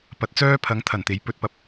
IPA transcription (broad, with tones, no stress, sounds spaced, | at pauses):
p ɐ˨˥ t̚ t͡s œː˥ pʰ ɐ˨˥ ŋ t̪ʰ ɐ˨˩ n t̪ e˨ j p ɵ˧ t̚ p ɐ˨˥ p̚